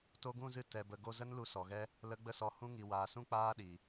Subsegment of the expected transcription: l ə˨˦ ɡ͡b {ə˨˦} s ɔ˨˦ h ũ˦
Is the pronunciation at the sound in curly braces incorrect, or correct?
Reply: incorrect